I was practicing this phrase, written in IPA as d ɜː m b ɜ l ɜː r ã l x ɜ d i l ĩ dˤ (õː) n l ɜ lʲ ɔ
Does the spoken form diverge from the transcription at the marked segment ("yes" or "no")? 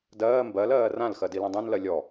yes